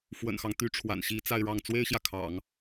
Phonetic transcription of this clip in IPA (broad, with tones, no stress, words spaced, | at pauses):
fwə̰˨˩nxɑ˦ŋ t̪y˧˥ʈ͡ʂʰwa̰˨˩n ɕi˧˥ t͡sa˥˧ɪ̯ɻɑ˥˩ŋ t͡swe˥ɪ̯ɕjä˨kʰɑ̰˨˩˦ŋ